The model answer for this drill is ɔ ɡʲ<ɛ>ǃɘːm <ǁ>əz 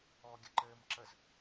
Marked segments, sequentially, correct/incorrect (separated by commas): incorrect, correct